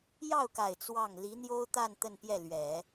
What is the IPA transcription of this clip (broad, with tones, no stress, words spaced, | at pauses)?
jɑ˥˩ʊ̯ka˨˩ɪ̯ t͡swɑ˥˩ŋ li˧˥n̪jo˥ʊ̯t̪a˥˧n t̪ə˥˧npjɛ˥˩lɥɛ˨˩˦